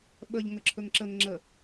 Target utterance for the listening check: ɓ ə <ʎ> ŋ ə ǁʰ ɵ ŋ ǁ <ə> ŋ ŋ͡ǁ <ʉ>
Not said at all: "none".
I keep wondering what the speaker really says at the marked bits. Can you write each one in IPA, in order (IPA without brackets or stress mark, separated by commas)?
ʎ, ə, ə